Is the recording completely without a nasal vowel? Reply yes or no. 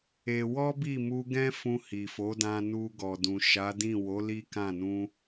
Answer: no